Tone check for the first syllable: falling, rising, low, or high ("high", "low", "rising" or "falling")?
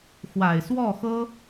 low